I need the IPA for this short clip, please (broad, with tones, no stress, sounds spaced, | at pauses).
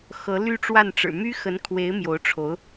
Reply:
x ɤ˧˥ l y˥ ʈ͡ʂ w a˥˩ n ʈ͡ʂ ɻ̩˨˩ m y˥ x ə˧˥ n kʰ w e˧˥ ɪ̯ m j o˧˥ ʊ̯ ʈ͡ʂʰ o˧˥ ʊ̯